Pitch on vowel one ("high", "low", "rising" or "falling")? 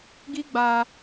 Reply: high